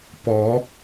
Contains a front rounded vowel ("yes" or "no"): no